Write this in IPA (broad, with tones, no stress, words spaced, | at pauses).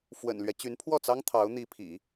fwə̰˨˩nlɥɛ˦ t͡ɕy˧˥npʰwɔ˥˩t͡sɑ˥ŋ t̪ʰɑ˧˥ʊ̯n̪i˧˥pʰḭ˨˩˦